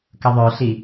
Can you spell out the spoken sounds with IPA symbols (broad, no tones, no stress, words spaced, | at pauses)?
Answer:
kəðˤœɬi